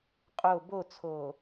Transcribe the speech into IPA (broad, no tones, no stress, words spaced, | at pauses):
qʼo bot͡sʰoː